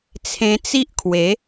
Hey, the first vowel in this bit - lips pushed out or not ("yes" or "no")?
no